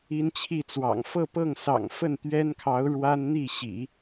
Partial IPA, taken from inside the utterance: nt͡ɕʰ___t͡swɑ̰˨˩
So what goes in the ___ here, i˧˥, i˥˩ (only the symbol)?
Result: i˥˩